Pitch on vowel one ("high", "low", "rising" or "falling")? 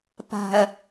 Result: low